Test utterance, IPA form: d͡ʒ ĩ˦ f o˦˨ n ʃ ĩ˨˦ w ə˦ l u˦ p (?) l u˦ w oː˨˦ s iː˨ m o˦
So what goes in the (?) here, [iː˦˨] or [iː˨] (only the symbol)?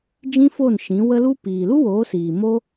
iː˨